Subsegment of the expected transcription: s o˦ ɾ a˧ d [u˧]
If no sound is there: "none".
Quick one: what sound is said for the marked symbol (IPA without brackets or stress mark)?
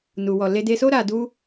u˦